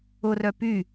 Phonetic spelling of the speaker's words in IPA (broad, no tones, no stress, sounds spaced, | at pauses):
ʊ r œ p y